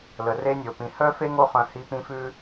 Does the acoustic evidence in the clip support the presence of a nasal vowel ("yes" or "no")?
yes